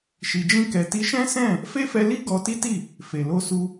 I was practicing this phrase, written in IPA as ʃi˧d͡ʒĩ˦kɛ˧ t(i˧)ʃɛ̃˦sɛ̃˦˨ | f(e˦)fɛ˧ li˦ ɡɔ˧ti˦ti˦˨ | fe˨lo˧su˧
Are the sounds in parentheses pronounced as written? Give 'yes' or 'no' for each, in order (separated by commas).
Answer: yes, yes